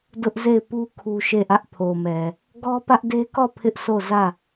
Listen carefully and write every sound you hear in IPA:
d ʊ˦ ʔ z e˦˨ ɪ̯ p u˦ kʰ u˦ ʃ e˦˨ ʔ ä˦ ʔ pʰ o˨ m ɛ˨ | ɡ ɔ˦ p ä˦ ʔ d e˦ k ɔ˦˨ pʰ ɪ˦ ʔ sʰ o˦˨ z ä˦˨

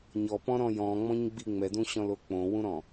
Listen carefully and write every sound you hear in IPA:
ɲ ɔ p ɔ̃ ɾ ɔ̃ j ɔ̃ ŋ͡m ɔ̃ ɲ ɡ͡b i ŋ͡m ɛ d ũ ɕ ɔ̃ l o k͡p õ w ũ ɾ ɔ̃

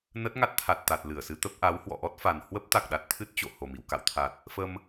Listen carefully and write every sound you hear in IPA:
n ə˦˥ t̚ ŋ a˦˥ t̚ t̪ʰ a˨˩ t̚ t̪ a˨˩ t̚ l ɨ˧˩ ə̯ s ɨ˨˦ t̪ ə˦˥ p̚ ʔ a˨˦ w h w ɔ̰˧˨ ʔ ɔ˦˥ t̚ f a˨˩ n h w ə˦˥ p̚ t̪ a˨˩ k̚ ɗ a˨˩ t̚ t̪ʰ ɨ˦˥ t̚ t͡ɕ o̰˧˨ h o˨˩ m ḭ˧˨ w k a̰˧˨ w t̪ʰ a˨˩ t̚ | f ə˧ m

